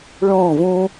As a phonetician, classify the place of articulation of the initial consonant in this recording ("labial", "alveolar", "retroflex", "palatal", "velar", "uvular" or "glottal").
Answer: retroflex